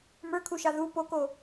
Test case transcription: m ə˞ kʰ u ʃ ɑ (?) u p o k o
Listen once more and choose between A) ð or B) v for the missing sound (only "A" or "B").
A